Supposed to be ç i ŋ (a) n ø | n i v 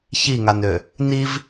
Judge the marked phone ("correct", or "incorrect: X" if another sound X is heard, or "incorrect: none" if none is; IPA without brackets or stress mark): correct